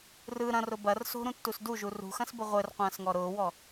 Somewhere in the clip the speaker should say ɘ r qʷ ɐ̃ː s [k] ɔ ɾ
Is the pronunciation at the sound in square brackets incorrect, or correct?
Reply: incorrect